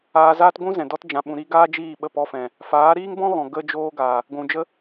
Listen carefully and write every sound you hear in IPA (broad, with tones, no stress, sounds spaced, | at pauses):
aː˧ z aː˦ t ɡʷ ũ˦ z ɛ̃˨ d ɔ˧ t d͡ʒ ã˨ ɓ ũ˨ ɾ i˧ ɡ aː˦ d͡ʒ iː˦˨ ɓ ə˦˨ p ɔ˦˨ f ɛ̃˨ | f aː˨˦ ɾ iː˦ ŋ b ɔ̃˦ ɣ ɔ̃˨ ɡ ə˧ d͡ʒ oː˧ ɡ aː˨ | ɡʷ ũ˨ d͡ʒ ə˦